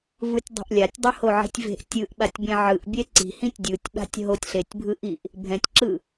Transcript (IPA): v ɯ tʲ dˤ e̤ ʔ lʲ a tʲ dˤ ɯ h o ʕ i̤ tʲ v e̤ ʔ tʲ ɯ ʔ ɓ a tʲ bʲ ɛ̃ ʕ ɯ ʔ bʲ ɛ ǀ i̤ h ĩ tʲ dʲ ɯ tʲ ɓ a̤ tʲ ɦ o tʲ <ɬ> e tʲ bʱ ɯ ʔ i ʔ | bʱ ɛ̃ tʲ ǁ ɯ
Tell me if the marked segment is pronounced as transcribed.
yes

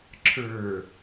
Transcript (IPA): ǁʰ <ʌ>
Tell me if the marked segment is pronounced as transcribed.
no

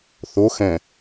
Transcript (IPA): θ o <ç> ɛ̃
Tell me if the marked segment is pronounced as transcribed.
no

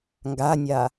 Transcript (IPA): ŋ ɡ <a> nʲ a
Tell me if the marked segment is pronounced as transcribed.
yes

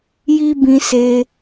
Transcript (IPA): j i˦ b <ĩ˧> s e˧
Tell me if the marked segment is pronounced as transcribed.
yes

